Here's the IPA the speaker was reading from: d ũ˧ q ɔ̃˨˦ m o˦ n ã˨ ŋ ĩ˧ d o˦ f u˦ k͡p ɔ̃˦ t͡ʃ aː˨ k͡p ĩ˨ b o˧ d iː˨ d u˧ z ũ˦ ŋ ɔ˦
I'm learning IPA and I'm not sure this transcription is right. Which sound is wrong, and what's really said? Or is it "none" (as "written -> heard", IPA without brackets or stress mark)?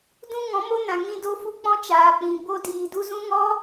q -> ŋ